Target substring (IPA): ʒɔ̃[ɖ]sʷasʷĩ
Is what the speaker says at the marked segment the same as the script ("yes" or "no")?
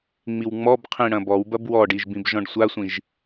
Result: yes